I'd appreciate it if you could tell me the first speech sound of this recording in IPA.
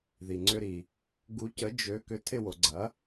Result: ð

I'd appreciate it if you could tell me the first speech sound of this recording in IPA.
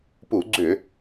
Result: p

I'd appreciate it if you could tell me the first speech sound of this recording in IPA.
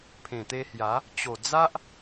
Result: pʰ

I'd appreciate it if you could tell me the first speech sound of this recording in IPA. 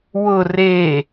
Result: w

